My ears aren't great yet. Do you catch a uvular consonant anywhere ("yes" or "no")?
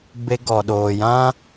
no